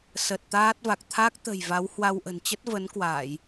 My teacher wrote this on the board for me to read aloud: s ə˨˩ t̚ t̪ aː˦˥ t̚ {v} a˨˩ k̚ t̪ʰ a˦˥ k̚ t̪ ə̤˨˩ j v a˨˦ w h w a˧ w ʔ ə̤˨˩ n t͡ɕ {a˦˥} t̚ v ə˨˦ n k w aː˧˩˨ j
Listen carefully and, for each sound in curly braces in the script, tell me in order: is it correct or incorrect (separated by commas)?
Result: correct, incorrect